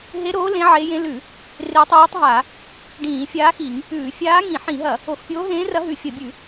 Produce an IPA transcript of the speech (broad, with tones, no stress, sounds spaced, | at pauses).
ɦ e˧˥ ɾ oː˧˥ l ẽ˧˥ ʕ e˧˥ j ẽ˧˥ l ʉ˧˩˧ | r e˧˥ tˤ ʉː˧˥ tˤ ɦ a˧˩˧ | ɖ ĩː˧˩˧ fʲ aː˧˥ x i˧˩˧ ŋ | ʉː˧˩˧ fʲ aː˧˥ ŋ ĩ˧˩˧ ħ ĩ˧˩˧ ɦ ɐ˧˩˧ | o˧˩˧ x pʲ oː˧˥ ɦ ẽː˧˥ r ɐ˧˥ ɦ ʉ˧˩˧ fʲ ɐ˧˩˧ bʲ ʉ˧˩˧